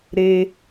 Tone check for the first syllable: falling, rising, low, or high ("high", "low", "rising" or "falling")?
high